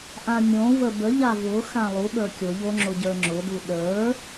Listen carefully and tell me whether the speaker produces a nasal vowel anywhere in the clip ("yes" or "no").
yes